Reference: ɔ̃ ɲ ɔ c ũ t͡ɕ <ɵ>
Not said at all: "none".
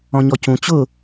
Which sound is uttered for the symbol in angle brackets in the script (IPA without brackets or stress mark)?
ʊ